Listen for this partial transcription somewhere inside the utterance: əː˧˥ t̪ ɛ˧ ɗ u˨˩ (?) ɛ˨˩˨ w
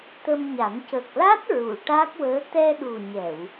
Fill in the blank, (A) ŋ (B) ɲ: B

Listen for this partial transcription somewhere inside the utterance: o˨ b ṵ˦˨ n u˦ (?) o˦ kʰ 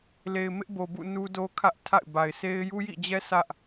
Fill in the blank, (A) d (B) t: A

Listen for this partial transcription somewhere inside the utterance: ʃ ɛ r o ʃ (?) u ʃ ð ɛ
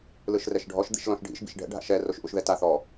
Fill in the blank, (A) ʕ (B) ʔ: B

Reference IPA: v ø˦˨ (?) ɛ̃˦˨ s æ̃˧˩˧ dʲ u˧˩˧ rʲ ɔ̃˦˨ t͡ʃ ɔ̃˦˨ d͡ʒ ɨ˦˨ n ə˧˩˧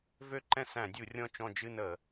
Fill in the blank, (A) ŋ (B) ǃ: B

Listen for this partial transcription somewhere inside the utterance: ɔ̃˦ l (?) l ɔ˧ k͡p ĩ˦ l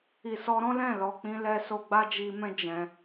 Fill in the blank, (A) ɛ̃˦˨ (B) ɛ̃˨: A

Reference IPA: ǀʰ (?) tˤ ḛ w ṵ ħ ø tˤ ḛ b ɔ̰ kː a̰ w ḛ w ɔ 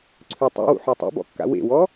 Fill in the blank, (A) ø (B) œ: A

